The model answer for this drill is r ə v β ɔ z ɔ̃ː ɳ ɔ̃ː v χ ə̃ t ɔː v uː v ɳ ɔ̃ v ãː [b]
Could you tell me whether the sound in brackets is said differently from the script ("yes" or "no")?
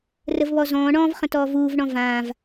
yes